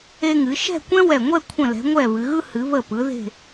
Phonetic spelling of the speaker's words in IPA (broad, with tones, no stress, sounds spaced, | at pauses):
e˧ ŋ ɨ˩˧ ʃ ɛ̤˥˧ kʷ ɛ̃˥ w ɛ˧˩ ŋʷ ɛ˥˧ kʷʰ ə̃˧˩ l ɛ̤˩˧ ŋʷ ɛ˧˩ β ɨ˩˧ ɣ ɯ˥ h ɨ˩˧ β ə˧˩ p ɯ˩˧ ð e̤˧˩